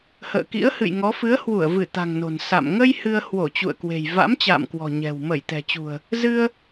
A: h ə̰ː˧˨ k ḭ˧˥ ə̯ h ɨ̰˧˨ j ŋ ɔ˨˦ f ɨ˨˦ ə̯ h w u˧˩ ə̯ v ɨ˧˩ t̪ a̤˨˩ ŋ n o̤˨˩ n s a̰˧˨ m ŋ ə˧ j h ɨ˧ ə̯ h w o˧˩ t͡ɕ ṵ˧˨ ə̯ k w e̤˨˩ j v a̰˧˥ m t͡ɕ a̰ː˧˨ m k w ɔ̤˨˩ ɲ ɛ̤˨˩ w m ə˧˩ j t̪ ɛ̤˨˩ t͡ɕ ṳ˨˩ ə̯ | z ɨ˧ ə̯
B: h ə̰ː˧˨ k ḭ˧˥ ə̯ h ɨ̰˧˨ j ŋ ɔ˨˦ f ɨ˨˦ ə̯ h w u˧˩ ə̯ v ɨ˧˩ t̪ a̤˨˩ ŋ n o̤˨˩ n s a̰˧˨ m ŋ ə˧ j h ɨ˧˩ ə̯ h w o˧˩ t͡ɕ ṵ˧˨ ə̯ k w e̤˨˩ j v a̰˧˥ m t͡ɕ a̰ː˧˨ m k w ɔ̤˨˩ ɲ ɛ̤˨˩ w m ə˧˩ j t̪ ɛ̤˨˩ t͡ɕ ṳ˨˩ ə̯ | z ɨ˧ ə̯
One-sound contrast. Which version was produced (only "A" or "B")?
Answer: A